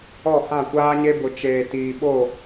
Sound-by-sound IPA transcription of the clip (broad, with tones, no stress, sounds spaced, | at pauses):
ɔ˦˨ h ã˦˨ kʷ aː˦ ɲ e˦ b ʊ˨ t͡ʃ eː˨ t iː˨ ɓ o˦˨